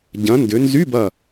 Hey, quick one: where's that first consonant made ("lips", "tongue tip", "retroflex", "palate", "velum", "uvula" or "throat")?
palate